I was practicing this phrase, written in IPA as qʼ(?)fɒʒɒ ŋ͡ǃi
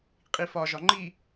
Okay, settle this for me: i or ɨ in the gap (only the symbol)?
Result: i